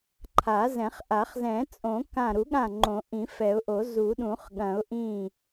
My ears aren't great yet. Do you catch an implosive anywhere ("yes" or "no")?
yes